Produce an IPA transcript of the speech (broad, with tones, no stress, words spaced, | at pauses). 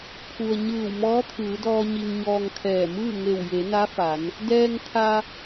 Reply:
pʰu˩ə̯ ɲɯː˧˩w mɔː˧˥t̪ʰɯː˩˧dɔː˧ ɲi˧ŋɲɔː˧ŋkʰɛː˧˩ mɯː˥˨ŋe˧˩w je˩˧na˧˥ fa˩˧n | dɛː˧ŋ t̪ʰa˧